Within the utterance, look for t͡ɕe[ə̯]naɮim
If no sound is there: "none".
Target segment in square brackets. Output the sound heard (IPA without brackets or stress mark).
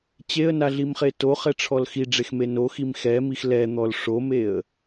ə̯